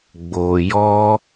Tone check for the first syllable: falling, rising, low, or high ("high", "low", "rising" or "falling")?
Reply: low